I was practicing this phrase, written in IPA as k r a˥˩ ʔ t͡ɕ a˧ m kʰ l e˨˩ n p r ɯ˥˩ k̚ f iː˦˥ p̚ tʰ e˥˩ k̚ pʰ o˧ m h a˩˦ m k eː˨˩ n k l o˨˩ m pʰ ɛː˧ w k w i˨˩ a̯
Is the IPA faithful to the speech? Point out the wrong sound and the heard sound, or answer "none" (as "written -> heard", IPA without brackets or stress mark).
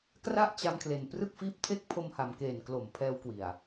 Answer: none